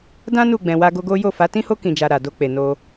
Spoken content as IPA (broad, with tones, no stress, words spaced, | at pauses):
dã˦ nu˦˨ɡ͡bɛ̃˨ wa˧ɡo˧ɡo˦ jo˦˨fa˨˦ tĩ˦ho˦ kĩ˧d͡ʒa˧ɾa˨ do˧k͡pe˨ no˧